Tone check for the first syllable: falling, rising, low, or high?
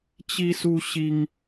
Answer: high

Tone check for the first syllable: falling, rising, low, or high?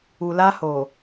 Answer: low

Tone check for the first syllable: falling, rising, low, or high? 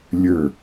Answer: falling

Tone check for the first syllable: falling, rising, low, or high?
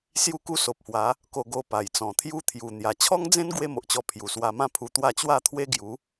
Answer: falling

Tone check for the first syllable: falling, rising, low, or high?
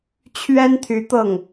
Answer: high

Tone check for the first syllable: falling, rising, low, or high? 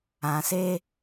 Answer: low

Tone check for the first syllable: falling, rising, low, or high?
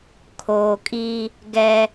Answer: low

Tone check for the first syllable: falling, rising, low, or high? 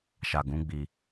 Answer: low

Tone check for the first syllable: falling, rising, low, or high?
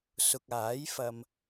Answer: low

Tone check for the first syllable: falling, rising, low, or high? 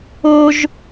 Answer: high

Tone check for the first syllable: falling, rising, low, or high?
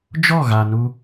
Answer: falling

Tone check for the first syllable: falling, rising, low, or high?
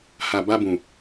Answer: low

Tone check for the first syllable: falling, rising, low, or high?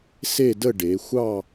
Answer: falling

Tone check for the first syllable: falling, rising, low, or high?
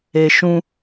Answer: low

